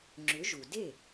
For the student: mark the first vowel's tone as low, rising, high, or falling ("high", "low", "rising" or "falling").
rising